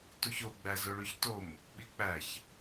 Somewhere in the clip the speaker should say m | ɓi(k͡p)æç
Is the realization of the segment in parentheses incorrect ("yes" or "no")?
no